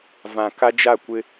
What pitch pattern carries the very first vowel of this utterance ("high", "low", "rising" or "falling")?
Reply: low